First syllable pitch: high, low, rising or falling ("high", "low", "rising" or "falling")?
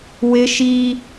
high